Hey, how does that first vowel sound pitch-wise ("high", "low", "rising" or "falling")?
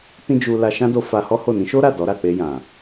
high